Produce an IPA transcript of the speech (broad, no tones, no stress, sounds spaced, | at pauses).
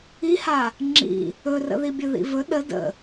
i h a | ŋ͡ǁ ḭ | ɵ r ə̰ ð i bʲ ɵ ð ḭ v ɵ ɗ ə d ə̰